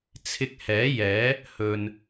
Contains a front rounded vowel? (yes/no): no